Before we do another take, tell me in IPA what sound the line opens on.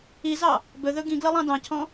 i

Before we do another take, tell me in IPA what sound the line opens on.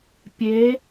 pʲ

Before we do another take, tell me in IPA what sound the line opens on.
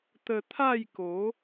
t̪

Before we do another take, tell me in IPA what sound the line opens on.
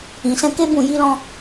ĩ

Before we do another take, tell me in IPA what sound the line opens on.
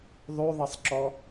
ðˤ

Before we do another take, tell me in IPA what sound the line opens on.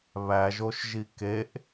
β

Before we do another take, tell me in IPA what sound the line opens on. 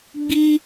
ɡ͡b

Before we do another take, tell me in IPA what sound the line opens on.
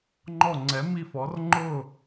ŋ͡ǃ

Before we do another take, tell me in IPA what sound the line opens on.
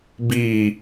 b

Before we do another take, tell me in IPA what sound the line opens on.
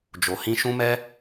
d͡ʒ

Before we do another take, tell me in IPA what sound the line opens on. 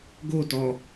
ɡ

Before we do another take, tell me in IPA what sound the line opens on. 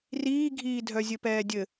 r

